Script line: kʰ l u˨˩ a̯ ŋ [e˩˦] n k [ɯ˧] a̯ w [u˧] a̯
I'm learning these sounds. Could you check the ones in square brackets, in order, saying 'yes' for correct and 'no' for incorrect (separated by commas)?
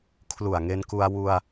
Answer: no, no, yes